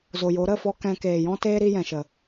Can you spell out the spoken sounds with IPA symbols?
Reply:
zo˨jo˨˦ ɾə˦˨fɔ˦ kɛ̃˧ keː˨jɔ̃˦teː˦ ɾi˧ jɛ̃˨ʃə˨

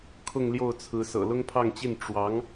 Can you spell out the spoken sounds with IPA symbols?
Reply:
kʰʊ˥˧ŋljo˥˩ʊ̯t͡sʰɹ̩˧˥ sɤ̰˨˩lʊ˥ŋpʰɑ˥˧ŋt͡ɕi˥˩n ʈ͡ʂwɑ˧˥ŋ

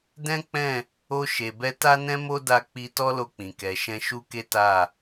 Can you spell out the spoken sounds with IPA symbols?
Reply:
dɛ̃˦k͡pɛ̃˦˨ | o˧ʃe˨bɛ˧ta˦ nɛ̃˦mo˦da˧k͡pi˧ tɔ˦lo˧k͡pĩ˨ kɛ˨ʃɛ̃˧ʃu˦ke˦ ta˦˨

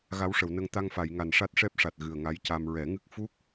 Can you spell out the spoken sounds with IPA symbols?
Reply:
ɣa˧˥wʂə˨˩˨wnə˧ŋ t̪a˧ŋfa˨˩˨jŋa˨˩n ʂa˦˥t̚ ʂɛ˦˥p̚ʂa˨˩t̚ ɣɨ˨˩ə̯ŋa˧˥jca˧m ɹɛ˨˩˦ŋɨ˦˥k̚ fu˦˥k̚

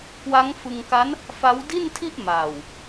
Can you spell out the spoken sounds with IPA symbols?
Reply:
kwa˦˥ŋfɯ˧ŋka˦˥n | fa˦˥wdi˥˩ntʰi˥˩ʔ ma˨˩w

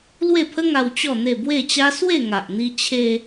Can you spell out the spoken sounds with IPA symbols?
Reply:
lwe˥˧pʰə˦ ŋa˧w t͡ɕɔ˥˧n̪e˥˧ bwe˥˧t͡ɕa˦ swe˥˧ŋa˨ʔn̪i˧ t͡ɕʰe˧

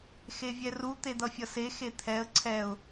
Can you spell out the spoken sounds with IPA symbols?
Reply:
xevʲɛru t̪ed̪ʌfʲʌse xet̪ʰɛə̯ ǀʰɛʊ̯

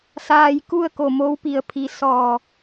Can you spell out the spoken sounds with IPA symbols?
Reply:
saː˧jku˥˨ə̯ko˧˩ mo˧˥wpi˧˩ə̯ pʰi˩˧ sɔː˧˩

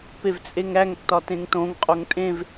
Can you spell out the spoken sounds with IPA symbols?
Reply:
pevt͡sʼeŋɾæŋtːɒ tẽŋtõŋqʼoŋ tʼẽv

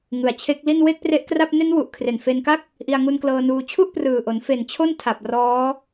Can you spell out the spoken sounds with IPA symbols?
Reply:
ŋɯ˨˩a̯t͡ɕʰe˦˥k̚li˥˩n we˥˩k̚pre˦˥ʔkra˥˩p̚ ne˦˥nwu˨˩ʔ kʰre˨˩nfe˧nka˥˩k̚ | ʔi˧a̯ŋu˧nklɤː˧nuː˧ t͡ɕʰu˥˩ʔprɯː˨˩ʔo˩˦n fe˨˩n t͡ɕʰo˥˩n tʰa˨˩p̚ rɔː˦˥

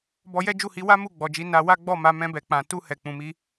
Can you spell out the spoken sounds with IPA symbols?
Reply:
bɔ˧ jɛ˦ d͡ʒu˦˨hi˧wa˦ mu˦˨ɡ͡bɔ˨d͡ʒi˨˦ na˧wa˦ɡ͡bɔ˦˨ ma˨˦ mɛ̃˧bɛ˨k͡pã˨ tu˧ hɛ˨k͡pũ˨mi˧

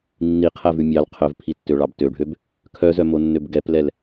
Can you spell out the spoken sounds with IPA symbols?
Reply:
nːiqʰævʉ mʲɑl qʰœvpʰitːøɭɑb tøɖʱøb | kʰœzœmonːøb ɡɛplɛl

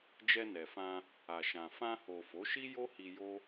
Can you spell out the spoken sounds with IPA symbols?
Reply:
d͡ʒɛ˧nɛ˨fã˧ | a˨ʃã˨ fã˧ho˨ fo˨˦ʃi˦jo˦hi˧ jo˦

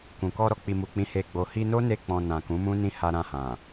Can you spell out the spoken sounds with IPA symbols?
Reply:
kũ˨kɔ˧ ɾɔ˧k͡pi˨mu˨k͡pĩ˨˦ he˧ɡ͡bo˧ hi˧no˦ne˧k͡pɔ̃˨ nã˨kũ˨˦mũ˦nĩ˦ ha˧ɾã˧hã˨

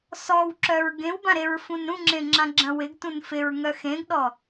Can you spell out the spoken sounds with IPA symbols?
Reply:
sɔwǁœɹ ɡẽwbã ɾeɹfũnɾũŋ͡ǁẽ ŋ͡ǁãɡ͡ǁɐ̃wɪɡtũn fɪɹŋœ xẽɡɗɔ

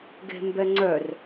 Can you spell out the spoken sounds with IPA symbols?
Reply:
ɡe̤mbɛŋ͡ǀœr

